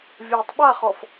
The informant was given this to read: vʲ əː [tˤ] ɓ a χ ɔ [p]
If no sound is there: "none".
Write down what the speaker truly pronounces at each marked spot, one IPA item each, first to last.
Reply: tˤ, f

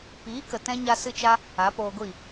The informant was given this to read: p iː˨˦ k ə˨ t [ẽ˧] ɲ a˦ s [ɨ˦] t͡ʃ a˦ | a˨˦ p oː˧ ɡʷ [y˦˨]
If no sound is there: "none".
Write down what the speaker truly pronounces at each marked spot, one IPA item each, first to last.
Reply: ɛ̃˧, ɨ˦, i˦˨

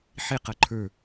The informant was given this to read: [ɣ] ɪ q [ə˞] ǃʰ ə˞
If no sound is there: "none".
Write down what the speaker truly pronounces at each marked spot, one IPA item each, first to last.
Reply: ħ, ʌ

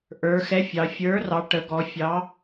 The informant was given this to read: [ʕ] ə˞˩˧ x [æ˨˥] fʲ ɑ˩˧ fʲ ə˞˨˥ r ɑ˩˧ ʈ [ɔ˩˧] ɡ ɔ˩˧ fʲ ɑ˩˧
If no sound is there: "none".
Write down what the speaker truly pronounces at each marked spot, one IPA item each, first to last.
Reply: ʔ, ɛ˨˥, ə˩˧

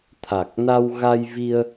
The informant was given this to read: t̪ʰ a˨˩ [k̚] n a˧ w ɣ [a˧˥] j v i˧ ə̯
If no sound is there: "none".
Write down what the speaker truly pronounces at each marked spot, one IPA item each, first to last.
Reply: k̚, a˧

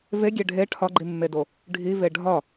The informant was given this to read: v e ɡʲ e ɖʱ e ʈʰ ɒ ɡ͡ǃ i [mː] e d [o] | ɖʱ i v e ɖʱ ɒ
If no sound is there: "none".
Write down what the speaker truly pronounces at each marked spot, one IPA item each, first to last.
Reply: mː, o

